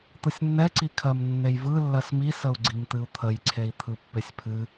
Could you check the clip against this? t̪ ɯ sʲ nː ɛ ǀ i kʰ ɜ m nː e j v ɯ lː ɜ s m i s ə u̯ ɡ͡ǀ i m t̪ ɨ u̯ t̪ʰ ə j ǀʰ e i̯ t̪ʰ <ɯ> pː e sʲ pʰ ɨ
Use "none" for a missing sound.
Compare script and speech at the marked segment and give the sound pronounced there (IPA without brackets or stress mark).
ɯ